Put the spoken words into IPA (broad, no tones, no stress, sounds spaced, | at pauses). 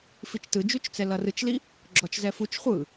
f i t͡ʃ t ɯ d͡ʒ u t͡ʃ t͡s ɛ l ʌ r ɯ t͡ʃ l i | ɡ͡ǁ ɔ t͡ʃ z ɛ f u t͡ʃ χʷ ɯ